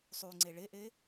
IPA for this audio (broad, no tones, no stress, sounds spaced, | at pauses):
sˤ y ŋ͡ǀ e ɭ e ʔ e